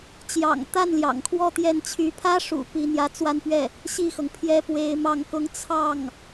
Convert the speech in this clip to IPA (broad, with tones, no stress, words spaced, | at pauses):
t͡ɕjɑ̰˨˩ŋt̪a˥˩n ljɑ̰˨˩ŋkʰwɔ˥˧t̪jɛ˥˩nt͡ɕʰy˧˥ pʰä˥ʂṵ˨˩ pi˧˥n̪jä˧˥ t͡swa˥˧npɥɛ˥˩ | ɕi˥˩xɤ˩ŋ pʰjɛ˥pwe˧˥ɪ̯mɑ˥˩ŋkʊ˥ŋ t͡sʰɑ˥˩ŋ